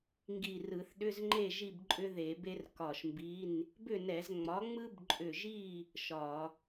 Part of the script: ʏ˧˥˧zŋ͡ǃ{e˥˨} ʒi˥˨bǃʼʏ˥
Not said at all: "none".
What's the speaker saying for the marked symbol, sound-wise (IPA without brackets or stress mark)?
e˥˨